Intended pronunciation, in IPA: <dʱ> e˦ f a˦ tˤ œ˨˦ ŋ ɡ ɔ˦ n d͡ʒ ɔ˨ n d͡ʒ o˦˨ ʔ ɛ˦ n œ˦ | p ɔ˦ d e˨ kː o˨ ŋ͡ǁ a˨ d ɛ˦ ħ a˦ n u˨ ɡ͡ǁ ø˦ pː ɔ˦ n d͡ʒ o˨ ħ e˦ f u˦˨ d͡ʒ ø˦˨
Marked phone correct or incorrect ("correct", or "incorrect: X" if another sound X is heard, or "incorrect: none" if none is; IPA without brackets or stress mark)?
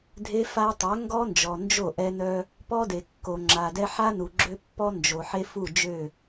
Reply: correct